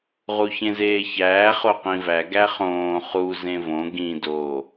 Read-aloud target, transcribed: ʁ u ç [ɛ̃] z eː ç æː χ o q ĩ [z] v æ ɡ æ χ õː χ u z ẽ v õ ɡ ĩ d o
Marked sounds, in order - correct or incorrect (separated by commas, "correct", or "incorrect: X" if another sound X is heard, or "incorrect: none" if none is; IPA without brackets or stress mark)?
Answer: incorrect: ẽ, incorrect: none